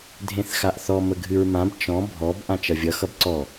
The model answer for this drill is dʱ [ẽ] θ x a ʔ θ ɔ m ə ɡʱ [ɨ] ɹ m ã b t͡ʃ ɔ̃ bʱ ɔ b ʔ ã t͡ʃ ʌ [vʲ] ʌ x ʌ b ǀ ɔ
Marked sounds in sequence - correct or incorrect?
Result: correct, correct, correct

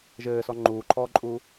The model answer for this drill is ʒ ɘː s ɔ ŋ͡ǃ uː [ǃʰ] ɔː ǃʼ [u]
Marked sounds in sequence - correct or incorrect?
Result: correct, correct

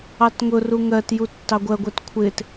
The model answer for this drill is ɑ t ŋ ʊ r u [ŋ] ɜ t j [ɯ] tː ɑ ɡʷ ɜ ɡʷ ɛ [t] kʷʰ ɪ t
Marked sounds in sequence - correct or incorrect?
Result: correct, incorrect: u, correct

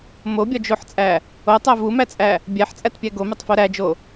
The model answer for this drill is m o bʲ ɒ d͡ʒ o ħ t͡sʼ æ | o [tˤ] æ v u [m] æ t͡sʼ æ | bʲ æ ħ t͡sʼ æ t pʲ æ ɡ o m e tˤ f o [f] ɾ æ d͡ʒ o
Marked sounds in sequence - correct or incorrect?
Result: correct, correct, incorrect: none

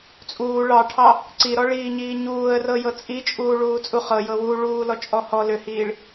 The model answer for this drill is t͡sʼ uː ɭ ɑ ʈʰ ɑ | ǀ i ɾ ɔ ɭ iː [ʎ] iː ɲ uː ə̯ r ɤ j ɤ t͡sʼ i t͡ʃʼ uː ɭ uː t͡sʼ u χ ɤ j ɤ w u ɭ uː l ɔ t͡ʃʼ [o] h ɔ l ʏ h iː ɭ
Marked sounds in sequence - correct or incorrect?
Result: incorrect: ɲ, incorrect: ɔ

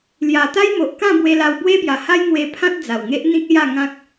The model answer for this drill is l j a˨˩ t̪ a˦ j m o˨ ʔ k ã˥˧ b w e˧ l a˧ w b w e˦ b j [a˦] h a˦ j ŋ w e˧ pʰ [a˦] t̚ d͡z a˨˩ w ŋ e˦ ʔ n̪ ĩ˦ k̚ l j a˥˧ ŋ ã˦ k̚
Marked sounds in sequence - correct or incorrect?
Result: incorrect: a˨˩, incorrect: ã˦

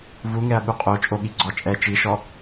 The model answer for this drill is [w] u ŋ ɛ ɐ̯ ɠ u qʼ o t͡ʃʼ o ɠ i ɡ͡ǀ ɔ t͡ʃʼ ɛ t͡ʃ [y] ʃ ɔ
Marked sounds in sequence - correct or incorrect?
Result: incorrect: v, incorrect: i

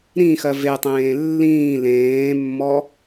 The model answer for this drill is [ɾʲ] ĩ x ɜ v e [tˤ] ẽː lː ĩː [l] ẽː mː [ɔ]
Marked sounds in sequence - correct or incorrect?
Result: incorrect: ɾ, correct, correct, correct

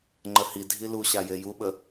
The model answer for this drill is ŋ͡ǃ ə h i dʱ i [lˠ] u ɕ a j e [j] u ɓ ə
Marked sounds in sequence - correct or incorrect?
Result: incorrect: l, correct

